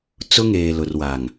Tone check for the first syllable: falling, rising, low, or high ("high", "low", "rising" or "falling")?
high